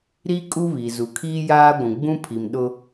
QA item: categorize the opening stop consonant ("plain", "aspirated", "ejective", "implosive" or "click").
ejective